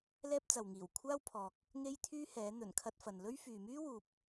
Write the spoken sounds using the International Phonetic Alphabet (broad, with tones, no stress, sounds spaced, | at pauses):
l ɛː˥ p̚ t͡s ɐ˨ w ŋ iː˨˩ w kʷʰ aː˥ w pʰ ɔː˨ k̚ | ŋ e˥ j t̪ʰ yː˥ h ɛː˨˥ n̪ ɵ˨˩ n kʰ ɐ˧ t̚ f ɐ˨ n l ɵ˥ ɥ f yː˨ m yː˥ w uː˨ p̚